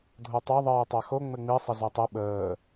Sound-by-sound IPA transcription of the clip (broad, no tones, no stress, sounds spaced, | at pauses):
dʱ o tˤ æ ðˤ ɘː tˤ a x o ŋ͡m ɘ ŋ͡m i sˤ ə z æ tˤ ɘ ɓ əː